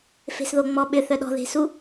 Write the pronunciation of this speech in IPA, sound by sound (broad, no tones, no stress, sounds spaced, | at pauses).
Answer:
f e̤ s ð o ŋ͡m ɔ ɓ ʏ θ œ ɗ ɔ̤ ð e̤ s u